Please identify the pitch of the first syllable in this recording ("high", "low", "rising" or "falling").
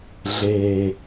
low